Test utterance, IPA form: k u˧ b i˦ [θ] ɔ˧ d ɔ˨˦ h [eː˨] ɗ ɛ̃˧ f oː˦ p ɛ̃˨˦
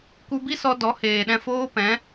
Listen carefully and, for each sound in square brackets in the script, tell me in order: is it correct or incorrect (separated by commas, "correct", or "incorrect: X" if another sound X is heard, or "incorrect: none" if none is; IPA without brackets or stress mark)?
incorrect: s, correct